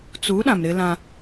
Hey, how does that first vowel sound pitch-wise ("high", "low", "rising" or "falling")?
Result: rising